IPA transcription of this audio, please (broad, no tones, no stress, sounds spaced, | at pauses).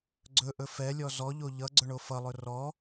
ɡ͡ǀ ɵ ʔ ɵ f ɛ lʲ ɔ z ɔ ʎ o ʎ ʌ ɡ͡ǀ ɵ ɳ o f ʌ lˠ ɵ r ɔ